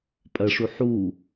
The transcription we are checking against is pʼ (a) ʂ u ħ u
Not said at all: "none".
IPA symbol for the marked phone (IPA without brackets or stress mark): ɐ